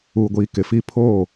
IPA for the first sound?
uː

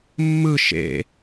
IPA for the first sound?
mː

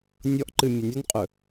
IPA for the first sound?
nʲ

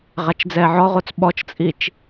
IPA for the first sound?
ʁ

